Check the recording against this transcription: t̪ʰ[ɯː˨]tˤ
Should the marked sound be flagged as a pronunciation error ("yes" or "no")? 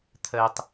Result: yes